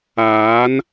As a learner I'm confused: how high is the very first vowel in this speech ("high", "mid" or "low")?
low